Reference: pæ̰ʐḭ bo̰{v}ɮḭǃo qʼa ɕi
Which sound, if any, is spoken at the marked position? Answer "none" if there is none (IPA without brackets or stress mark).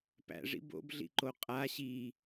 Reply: b